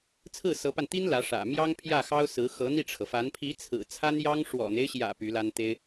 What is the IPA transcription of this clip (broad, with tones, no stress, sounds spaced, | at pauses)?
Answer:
t͡sʰ ɹ̩˥˩ s ɤ˧˥ p a˧ n t̪ i˥ n l ä˧˥ ʂ ä̰˨˩ m j ɑ˥ ŋ pʰ j ä˥˩ x ɑ˥ ʊ̯ s ɹ̩˧˥ x ɤ˧˥ n̪ i˥˩ ʈ͡ʂʰ ɤ˩ f a˧˥ n pʰ i˧˥ t͡sʰ ɹ̩˨˩ t͡sʰ a˥ n j ɑ˥ ŋ ʂ w ɔ̰˨˩ n̪ e˦ ɪ̯ ɕ j ä̰˨˩ p y˧˥ l a˥ n t̪ e˥ ɪ̯